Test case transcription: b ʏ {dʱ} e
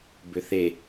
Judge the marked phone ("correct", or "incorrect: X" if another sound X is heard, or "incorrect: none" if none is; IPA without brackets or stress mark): incorrect: θ